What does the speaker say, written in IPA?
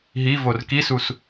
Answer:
ɦ i v o r k i s u s

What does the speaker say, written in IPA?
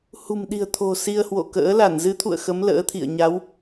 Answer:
h ṳ˨˩ m ɗ i̤˨˩ ə̯ t̪ʰ o̤˨˩ s i˧ ə̯ h w o̰˧˨ k ə̰ː˧˥ l a˧˩ n z ɨ˨˦ t̪ʰ ṵ˧˨ ə̯ x ə˨˦ m l ə̰ː˧˥ t̪ʰ ḭ˧˨ ə̯ ɲ a˨˦ w

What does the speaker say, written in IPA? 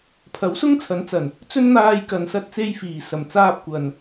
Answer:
pʰ ɐ˨˥ w s ʊ˥ ŋ t͡sʰ ɐ˨˥ n t͡s ɐ˨˩ n | t͡s ɵ˥ n n̪ aː˧ j k ɐ˨ n s ɐ˧ t̚ t͡s e˧ j f iː˨˩ s ɐ˨˩ m t͡s aː˧ p̚ kʷ ɐ˨ n

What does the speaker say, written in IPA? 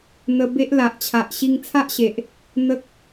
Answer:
n̪ ə˧ b e˦ ʔ l a˨ ʔ t͡ɕʰ a˨ ʔ ɕ i˧ ŋ t͡sʰ a˦ ʔ ɕ e˨ ʔ | n̪ ə˦ k̚

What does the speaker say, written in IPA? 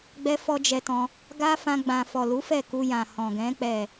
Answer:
ɡ͡b ɛ˦ f ɔ˦ d͡ʒ ɛ˧ t ɔ̃˧ | ɡ a˦ f ã˧ ɡ͡b ã˨ f ɔ˨ l u˨˦ f ɛ˦˨ k u˧ j ã˨ h ɔ̃˨ ɡ ɛ̃˨˦ k͡p ɛ˦˨

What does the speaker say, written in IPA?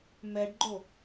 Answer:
m ɛ ɖ ɡ͡ǃ o

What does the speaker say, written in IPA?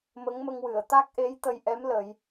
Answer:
m ə˧˥ ŋ m ə˧ ŋ w ɨ˨˩˨ ə̯ t̪ a˦˥ k̚ ʔ e˧˥ j t̪ ə˧ j ʔ ɛ˧˥ m l ə˨˩˦ j

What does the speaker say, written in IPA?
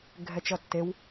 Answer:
ɡʱ ɛ t͡ʃ ʌ tː e w

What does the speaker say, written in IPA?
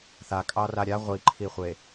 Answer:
θ a kʼ ɑ r a ɾʲ a ʁʷ i ǃʰ i χʷ e

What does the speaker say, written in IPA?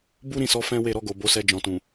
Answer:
b u˦ ɾ ĩ˦˨ s ɔ˨˦ f ɛ̃˦ w e˦˨ ɾ ɔ˧ ɡ o˨ b o˨˦ s ɛ˧ d͡ʒ ɔ̃˨ t ũ˨

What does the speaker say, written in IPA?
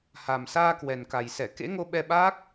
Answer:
h a˨˩ m s aː˧ k w ɛ˨˩ n k a˨˩ j s ɛ˧˩ k ḛ˧˥ ŋ o˧ ɓ ɛ˧ ɓ aː˦˥ k̚

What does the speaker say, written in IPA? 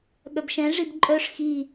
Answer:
ɠ œ b ʃ ɛ̃ ʐ i b ǃʼ œ ʂ x i

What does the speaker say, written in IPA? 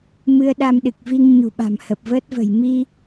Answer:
m ɨ˧ ə̯ ɗ a˧ m ɗ ɨ˨˩ k̚ v i˧ ŋ ɲ ṳ˨˩ ɓ a̤˨˩ m h ə˨˩ p̚ v əː˦˥ t̚ v ə̤˨˩ j m i˧

